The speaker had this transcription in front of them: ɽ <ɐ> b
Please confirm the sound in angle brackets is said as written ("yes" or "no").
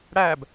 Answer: no